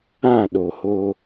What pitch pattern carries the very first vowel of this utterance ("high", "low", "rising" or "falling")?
falling